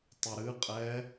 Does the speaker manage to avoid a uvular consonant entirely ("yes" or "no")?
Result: no